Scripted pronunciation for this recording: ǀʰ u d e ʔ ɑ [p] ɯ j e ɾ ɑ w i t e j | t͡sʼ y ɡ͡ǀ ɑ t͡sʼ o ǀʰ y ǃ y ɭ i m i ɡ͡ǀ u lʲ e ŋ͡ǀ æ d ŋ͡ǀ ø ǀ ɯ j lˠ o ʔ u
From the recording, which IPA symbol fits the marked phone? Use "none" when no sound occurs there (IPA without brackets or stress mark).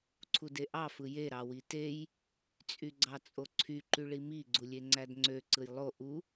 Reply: f